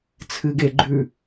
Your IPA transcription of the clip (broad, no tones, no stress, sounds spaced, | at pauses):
t͡sʰ ɨ ɡ e ɡ͡ǃ ʉ